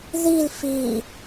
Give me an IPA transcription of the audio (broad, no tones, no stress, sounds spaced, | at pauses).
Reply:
ð i l f i